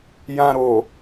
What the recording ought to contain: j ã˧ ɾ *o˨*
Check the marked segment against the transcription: correct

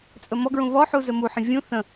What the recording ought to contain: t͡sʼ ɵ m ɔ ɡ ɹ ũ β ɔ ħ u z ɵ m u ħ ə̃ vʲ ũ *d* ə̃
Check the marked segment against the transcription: incorrect: θ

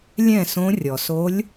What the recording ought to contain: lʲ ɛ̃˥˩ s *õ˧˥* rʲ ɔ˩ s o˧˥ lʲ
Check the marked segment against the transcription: correct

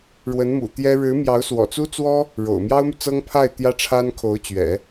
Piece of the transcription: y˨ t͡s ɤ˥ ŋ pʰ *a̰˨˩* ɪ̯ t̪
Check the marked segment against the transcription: incorrect: a˥˩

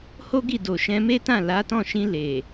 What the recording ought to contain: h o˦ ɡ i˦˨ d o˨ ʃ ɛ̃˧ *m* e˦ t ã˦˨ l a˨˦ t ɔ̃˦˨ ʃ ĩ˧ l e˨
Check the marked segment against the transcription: correct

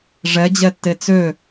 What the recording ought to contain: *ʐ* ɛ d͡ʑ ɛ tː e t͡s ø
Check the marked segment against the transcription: correct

